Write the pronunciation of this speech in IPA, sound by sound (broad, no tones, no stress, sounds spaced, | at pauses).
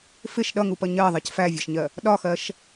f ɪ ʃ ɗ ʌ ŋ u p ʌ ɲ ɜ ðˤ ɜ c f æ vʲ ɒ ʃ ɲ ɜ | ɗ ɒ x ɜ ʃ